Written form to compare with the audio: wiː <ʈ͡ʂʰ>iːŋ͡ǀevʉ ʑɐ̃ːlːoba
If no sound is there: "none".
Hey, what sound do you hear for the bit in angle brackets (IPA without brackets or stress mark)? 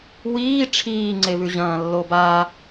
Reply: ʈ͡ʂʰ